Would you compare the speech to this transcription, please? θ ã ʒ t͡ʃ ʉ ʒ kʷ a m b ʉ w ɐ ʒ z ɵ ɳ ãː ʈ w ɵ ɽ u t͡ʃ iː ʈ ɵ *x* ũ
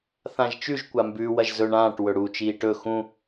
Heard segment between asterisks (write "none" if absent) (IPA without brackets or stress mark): x